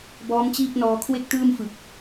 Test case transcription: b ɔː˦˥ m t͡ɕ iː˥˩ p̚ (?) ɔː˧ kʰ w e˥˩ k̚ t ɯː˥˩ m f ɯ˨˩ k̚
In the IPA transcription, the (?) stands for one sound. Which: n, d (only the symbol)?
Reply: n